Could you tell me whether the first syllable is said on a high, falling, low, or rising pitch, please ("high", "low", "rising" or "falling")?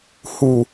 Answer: low